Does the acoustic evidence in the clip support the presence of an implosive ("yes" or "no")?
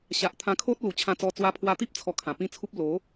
no